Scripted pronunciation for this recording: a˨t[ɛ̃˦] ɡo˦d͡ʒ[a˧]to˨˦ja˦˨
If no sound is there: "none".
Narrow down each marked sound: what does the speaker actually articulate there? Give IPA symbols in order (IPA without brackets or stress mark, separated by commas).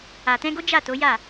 ɛ̃˧, a˦˨